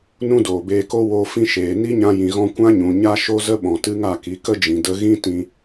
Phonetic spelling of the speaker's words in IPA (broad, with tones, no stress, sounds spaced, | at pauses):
n ũ˦ d oː˨ b eː˧ k o˦ w o˧ f ĩ˧ ʃ eː˨ n i˦ ɲ ã˧ j ĩ˨ ɣ ɔ̃˧ kʷ ã˦ ɲ ũ˨ ɲ a˦ ʃ o˦ z ə˦ ɓ ɔ̃˨ t ɨ˦ ŋ a˦˨ k i˨˦ k ə˦ d͡ʒ ĩ˨ d ə˧ ɣ ĩ˦ t ĩ˧